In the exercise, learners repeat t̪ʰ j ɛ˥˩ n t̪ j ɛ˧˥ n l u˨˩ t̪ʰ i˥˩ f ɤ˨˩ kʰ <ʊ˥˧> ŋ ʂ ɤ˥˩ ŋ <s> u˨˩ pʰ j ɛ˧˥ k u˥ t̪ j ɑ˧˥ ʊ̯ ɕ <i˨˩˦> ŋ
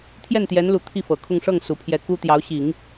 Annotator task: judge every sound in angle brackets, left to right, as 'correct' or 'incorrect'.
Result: correct, correct, correct

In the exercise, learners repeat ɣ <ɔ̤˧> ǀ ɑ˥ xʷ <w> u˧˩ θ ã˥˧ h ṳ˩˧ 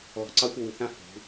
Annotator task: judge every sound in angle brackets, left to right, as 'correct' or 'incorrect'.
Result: correct, correct

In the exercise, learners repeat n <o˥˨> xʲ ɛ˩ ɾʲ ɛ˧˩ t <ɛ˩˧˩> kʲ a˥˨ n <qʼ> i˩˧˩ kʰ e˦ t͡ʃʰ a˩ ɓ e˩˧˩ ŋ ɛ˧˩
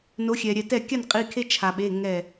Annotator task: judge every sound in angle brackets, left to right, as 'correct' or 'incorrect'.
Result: incorrect, incorrect, correct

